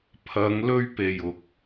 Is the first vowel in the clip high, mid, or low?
low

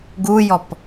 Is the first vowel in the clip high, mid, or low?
high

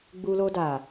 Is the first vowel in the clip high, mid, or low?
high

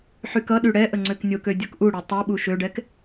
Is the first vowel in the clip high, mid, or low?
high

